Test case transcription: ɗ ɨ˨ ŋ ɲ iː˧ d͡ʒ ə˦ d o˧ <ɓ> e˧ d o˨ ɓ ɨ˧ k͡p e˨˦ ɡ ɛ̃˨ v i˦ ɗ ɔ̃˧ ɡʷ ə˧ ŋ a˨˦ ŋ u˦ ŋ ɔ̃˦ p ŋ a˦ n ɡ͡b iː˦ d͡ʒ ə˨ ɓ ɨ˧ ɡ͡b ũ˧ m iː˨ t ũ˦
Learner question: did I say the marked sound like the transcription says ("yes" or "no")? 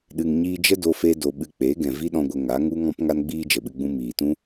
no